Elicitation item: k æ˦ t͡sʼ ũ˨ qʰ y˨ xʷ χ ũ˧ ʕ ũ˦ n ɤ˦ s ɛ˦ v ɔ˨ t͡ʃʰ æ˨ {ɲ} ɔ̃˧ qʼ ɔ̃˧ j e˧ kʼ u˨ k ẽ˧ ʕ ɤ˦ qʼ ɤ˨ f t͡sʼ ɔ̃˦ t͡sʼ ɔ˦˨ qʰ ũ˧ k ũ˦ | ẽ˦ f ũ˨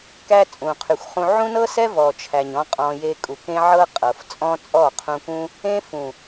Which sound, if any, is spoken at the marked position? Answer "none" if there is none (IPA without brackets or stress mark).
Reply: ɲ